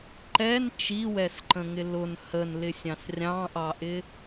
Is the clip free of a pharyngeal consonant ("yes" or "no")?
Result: yes